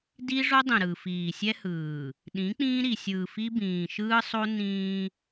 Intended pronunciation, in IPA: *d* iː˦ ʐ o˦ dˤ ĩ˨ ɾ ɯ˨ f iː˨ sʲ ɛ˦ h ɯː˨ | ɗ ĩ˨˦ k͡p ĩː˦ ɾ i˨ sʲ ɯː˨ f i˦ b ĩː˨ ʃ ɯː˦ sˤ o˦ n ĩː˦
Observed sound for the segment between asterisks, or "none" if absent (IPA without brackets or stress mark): d